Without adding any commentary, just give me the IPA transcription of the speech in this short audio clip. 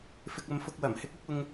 f ɪ˧ k̚ ɐ˧ m f ʊ˧ k̚ w ɐ˨˩ m h ɪ˨˥ k̚ ʊ˨˥ k̚ ʊ˧ ŋ

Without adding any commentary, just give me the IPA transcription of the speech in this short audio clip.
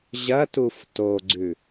ʑ ɐ t u f t o ɡ͡ǀ ʉ

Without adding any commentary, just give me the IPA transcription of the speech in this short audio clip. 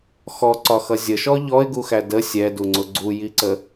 x ɔ ǀ ɒ x ʌ zʲ ə ʃ ɔ ʎ ɔ ɪ̯ ɡ u x æ d ə sʲ ɛ d u ŋ͡ǀ ʊ ɡ͡ǀ u j i ǀ ə

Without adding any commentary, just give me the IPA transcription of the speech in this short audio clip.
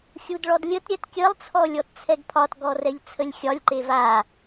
xʲ u d ɭ ɔ d lʲ ə t ɾʲ ɛ t kʲ ə lˠ t͡sʰ ɔ lʲ ɔ t t͡sʰ ɛ ɡ pʰ ɒ t ɡ ɔ r ɛ ʎ t͡sʰ ə lʲ xʲ ɒ lʲ ǃ e v a

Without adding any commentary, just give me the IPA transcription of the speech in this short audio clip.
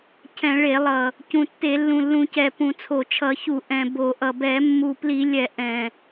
cʰ ɛ̃˧˩˧ ɭ e˧˩˧ lˠ ʌ˨˩ | c ũ˨˩ tː e˧˩˧ lː ũ˨˩ lː ũ˧˩˧ c ɛ˨˩ p ũ˧˩˧ t͡sʰ o˨˩ t͡ʃʰ ʌ˧˩˧ ç u˧˩˧ ʔ ɛ̃˨˩ b o˧˩˧ ʔ ʌ˨˩ b ɛ˧˩˧ mː u˨˩ p l i˧˩˧ lʲ ɛ˧˩˧ ʔ ɛ̃˨˩

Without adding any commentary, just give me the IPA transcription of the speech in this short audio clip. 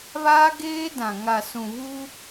β aː˦ ɡ eː˦ d ã˨ ŋ a˨ s ũ˨ β uː˦

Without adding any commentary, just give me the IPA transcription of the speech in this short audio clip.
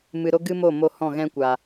m ɨ˧ ɾ o˦ ɡ ɨ˦ m o˦˨ m o˦ h ɔ̃˦˨ ɣ ɛ̃˦ kʷ a˨

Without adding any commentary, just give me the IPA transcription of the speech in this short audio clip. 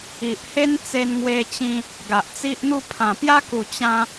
i˨ ʔ h e˦ n t͡s e˧ n ŋ w e˧ t͡ɕ ĩ˧ | ɡ a˨ ʔ t͡s i˦ ʔ n̪ u˥˧ pʰ ã˨˩ p j a˦ k u˨˩ t͡ɕ ã˧

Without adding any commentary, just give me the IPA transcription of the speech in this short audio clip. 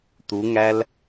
t u ŋ æ l

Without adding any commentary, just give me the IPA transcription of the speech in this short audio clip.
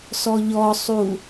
s ɔ ʎ ɔ sˤ u

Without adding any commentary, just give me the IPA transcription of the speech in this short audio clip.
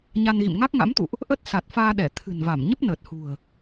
ɲ a˧ n ɣ ḭ˧˨ m ŋ a˦˥ k̚ ŋ a̰˧˥ m t̪ ṵ˧˨ ʔ | ʔ ə˦˥ t̚ s a˨˩ t̚ f aː˧ ɗ ɛ˧˩ t̪ʰ ɨ̤˨˩ n v a˧˩ m ɲ ə˦˥ p̚ n əː˨˩ t̚ h ṳ˨˩ ə̯

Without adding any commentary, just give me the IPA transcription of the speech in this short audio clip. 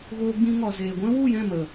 ɣ oː˧ ɡ͡b ĩ˧ ŋ ɔ˨ z eː˨ ɡʷ ɛ̃˦ w u˦˨ j ɛ̃˦˨ m ə˨

